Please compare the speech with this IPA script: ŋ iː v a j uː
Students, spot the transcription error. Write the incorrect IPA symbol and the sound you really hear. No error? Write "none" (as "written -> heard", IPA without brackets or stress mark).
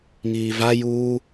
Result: none